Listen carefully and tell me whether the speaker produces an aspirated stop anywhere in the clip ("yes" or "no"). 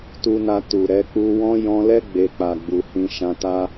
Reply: no